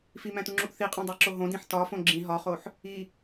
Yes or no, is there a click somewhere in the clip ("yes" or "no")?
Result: yes